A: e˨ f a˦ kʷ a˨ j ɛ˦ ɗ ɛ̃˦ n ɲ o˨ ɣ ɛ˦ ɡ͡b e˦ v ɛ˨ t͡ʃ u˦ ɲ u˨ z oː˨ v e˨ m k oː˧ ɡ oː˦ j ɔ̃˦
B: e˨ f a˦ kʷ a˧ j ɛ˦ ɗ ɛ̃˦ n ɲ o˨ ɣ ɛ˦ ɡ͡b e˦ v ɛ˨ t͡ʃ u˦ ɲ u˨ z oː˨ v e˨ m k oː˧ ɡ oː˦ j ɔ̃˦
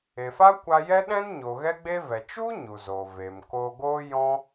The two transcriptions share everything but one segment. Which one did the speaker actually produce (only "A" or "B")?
B